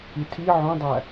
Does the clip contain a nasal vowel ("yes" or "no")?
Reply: yes